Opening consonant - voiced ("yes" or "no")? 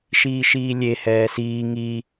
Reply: no